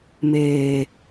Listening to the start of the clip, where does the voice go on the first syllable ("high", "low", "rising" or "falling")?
low